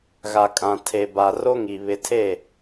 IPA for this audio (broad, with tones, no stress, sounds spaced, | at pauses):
ɣ a˨ kʼ ã˨ tʰ e˨ b a˨ r o˦ ŋ i˨ β ɪ˨ tʰ e˦˨